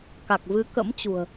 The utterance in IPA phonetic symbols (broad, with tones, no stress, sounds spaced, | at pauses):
k a˨˩ k̚ v ɨ˨˦ k ə̰˧˥ m t͡ɕ ṳ˨˩ ə̯